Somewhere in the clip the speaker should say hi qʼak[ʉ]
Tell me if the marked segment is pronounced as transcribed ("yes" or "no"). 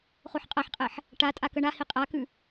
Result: yes